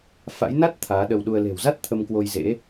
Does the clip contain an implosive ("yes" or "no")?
yes